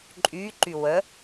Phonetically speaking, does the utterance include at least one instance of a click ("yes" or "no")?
yes